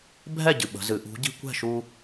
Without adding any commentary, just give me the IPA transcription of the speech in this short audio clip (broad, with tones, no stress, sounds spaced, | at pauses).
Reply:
bʱ ɛ˥˨ ɟ ɨ˨ ɓ ə̤˨˦ z ɨ˨˩˦ ʔ ṳ˨˦ ɟ i̤˦ kʷ ɛ̤˥˨ ʃ u˦